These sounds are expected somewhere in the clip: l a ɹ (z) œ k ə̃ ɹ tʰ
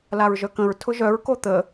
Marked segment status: incorrect: ʒ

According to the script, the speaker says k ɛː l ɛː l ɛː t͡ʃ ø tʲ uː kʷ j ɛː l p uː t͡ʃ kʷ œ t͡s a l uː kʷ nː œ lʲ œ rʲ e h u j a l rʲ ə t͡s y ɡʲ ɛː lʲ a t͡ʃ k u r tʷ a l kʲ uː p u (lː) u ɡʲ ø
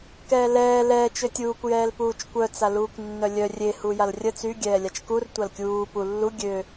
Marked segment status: correct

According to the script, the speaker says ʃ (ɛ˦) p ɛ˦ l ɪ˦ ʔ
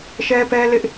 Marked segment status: correct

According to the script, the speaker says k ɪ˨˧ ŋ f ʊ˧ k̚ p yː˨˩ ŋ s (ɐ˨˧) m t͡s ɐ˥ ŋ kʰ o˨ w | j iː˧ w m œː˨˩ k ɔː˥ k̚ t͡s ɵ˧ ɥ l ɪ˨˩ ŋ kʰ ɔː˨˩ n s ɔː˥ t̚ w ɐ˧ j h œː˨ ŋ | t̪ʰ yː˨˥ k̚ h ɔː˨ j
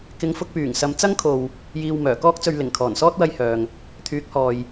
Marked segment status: correct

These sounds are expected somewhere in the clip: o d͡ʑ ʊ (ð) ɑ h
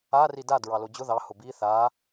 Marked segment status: correct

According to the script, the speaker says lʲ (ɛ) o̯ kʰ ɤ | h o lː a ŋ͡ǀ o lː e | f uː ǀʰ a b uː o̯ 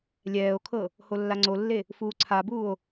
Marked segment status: incorrect: ɛː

